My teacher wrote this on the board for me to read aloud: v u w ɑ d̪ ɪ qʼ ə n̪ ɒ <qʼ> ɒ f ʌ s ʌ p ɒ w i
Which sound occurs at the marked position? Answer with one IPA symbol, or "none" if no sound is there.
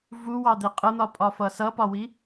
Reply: pʼ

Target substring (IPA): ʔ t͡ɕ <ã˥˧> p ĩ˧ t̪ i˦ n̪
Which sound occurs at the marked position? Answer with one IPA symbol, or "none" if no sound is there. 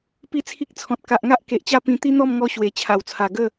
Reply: a˥˧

